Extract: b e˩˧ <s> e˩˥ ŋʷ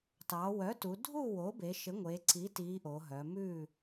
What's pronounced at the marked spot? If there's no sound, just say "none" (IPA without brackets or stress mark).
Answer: ʃ